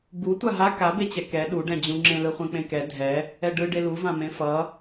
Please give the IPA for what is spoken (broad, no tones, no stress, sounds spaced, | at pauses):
b u tʷ a ɦ a k a b e t͡ɕ ɛ k ɛ ɗ u ɖ ɛ̃ d͡ʑ ũ ŋ͡ǁ ẽ l ɯ χʷ ɛ̃ k͡p ẽ k ɛ dʱ ɛ | ɛ ɖ ɯ ɖ e l u v ã m ẽ f ʌ